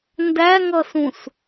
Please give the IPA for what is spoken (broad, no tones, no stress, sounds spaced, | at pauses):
n d æ ŋ ʌ s ũ s